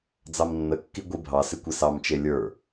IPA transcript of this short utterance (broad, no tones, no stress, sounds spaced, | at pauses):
d͡z ɑ m nː ə kː i ɡʷ i bʱ ɑ s ɪ kʷ e s ɑ m t͡ʃ e lʲ ə˞